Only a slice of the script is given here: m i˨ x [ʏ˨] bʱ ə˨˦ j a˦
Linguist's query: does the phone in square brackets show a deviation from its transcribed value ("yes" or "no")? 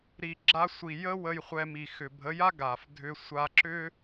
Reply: no